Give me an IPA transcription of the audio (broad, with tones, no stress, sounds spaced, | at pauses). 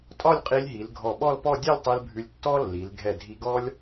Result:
tʼ ɒ˥˧ lʲ qʼ i˧ lʲ ɦ i˩˧ l ɡʱ ɔ˧˩ ɓ ɔ˥˧ l p ɔ˥˧ dʲ ɛ˥˧ lʲ tˤ i˧ l bʱ ʉ˧ lʲ tː ɔ˥ lː i˩˧ l ɡʱ ɛ˧˩ dʱ i˧ ɡ ɔ˥ lʲ